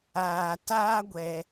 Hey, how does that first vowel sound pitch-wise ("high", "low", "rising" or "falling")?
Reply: low